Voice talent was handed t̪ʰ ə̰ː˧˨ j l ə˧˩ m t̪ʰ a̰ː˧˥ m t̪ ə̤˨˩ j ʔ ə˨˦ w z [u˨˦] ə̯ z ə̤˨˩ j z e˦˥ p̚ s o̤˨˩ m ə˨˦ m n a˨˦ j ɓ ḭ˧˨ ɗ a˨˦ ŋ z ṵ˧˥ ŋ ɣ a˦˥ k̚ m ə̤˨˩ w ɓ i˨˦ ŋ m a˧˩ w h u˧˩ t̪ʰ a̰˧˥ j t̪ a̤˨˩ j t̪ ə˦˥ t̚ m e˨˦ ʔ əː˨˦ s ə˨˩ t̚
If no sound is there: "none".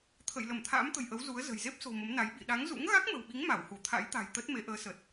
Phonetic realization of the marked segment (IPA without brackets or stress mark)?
u˨˦